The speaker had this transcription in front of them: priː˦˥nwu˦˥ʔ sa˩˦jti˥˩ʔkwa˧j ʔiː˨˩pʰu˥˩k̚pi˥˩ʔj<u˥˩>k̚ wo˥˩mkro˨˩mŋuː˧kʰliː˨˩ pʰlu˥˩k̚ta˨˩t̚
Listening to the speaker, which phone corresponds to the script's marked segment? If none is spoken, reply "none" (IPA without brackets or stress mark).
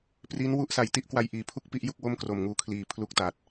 u˥˩